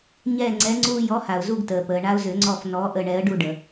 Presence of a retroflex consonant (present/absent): present